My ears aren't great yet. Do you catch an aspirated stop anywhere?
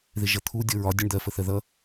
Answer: yes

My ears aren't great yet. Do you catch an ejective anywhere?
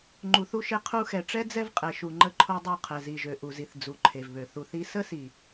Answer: yes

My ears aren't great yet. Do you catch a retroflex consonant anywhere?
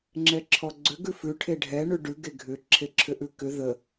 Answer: yes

